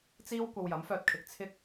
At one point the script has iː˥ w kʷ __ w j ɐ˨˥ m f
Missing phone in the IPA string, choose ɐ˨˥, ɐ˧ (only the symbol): ɐ˧